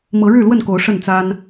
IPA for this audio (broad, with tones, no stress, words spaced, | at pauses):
mɤ˨˦ɻɻ̩˥˨lwə˥˨nko˨˦ʊ̯ ʂə˥˨nt͡sa˦n